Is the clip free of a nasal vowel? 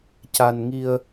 yes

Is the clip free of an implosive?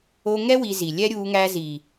yes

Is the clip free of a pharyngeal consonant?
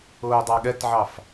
no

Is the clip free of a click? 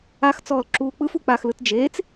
no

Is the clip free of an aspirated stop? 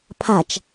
no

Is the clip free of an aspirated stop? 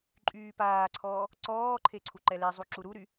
no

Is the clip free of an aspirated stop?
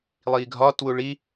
yes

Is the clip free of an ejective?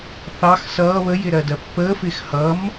yes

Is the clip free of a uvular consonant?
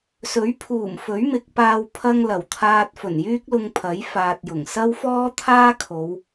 yes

